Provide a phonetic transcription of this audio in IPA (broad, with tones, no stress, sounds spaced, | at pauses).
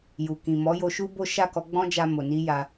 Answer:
j u˨ k ĩ˨ m ɔ˨˦ j o˧ ʃ u˦ b o˦ ʃ a˦˨ k ɔ˧ ɡ͡b ɔ̃˦ d͡ʒ a˧ m o˨ n i˧ j a˧